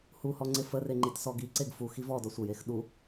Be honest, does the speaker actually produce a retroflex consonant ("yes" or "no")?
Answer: no